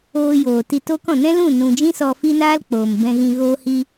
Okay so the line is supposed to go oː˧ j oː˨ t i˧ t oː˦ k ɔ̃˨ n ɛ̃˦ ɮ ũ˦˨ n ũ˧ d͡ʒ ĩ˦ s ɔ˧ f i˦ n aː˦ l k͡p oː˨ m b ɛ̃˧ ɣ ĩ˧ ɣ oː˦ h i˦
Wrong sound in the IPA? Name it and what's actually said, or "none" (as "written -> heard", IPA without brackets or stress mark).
ɮ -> l